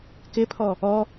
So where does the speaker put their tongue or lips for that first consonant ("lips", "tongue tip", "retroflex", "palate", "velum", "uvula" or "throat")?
velum